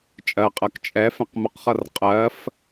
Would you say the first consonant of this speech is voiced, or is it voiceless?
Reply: voiceless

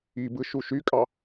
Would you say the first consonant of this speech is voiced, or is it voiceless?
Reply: voiced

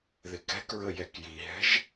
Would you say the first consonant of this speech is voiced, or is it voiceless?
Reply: voiced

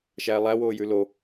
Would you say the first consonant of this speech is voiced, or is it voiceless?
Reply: voiceless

